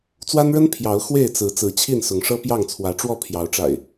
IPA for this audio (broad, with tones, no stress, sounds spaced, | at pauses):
t͡s w a˦ n ɻ ə˦ n pʰ j ɑ˨˦ ʊ̯ x w e˥˨ ɪ̯ t͡s ɹ̩˨˦ t͡s ɹ̩˨˦ t͡ɕʰ i˥˨ n s ʊ˨˦ ŋ ʂ ɤ˦ p j ɑ˥˨ ŋ t͡sʰ w ä˨˦ ʈ͡ʂ w ɔ˥˨ pʰ j ɑ˨˦ ʊ̯ ʈ͡ʂ a̰˨˩ ɪ̯